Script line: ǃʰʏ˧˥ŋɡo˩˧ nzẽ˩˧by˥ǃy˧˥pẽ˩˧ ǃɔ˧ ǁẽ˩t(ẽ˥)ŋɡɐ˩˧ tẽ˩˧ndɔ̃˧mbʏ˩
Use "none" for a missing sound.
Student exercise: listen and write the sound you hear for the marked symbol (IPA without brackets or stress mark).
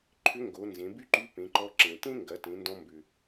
ẽ˥